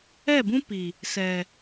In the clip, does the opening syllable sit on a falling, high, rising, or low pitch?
falling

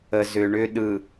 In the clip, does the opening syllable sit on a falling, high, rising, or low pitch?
low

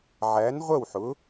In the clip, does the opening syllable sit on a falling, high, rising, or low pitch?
rising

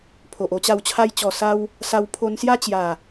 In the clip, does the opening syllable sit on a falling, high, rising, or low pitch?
low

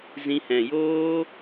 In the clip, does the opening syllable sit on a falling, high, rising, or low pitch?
high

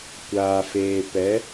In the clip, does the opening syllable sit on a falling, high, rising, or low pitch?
low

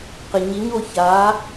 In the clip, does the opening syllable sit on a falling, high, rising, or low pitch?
low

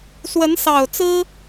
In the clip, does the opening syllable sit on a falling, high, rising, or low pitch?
rising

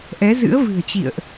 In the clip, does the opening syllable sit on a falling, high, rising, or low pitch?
rising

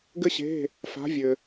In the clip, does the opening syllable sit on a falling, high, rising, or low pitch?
high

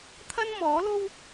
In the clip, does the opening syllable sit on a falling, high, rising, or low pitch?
high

